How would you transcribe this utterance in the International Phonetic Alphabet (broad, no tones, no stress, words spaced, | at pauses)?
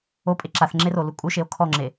opʼe ǁaθŋ͡ǁerolu kʼuʃeo̯ kʰɔŋ͡ǁe